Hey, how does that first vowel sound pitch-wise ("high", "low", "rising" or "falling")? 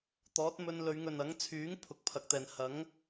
rising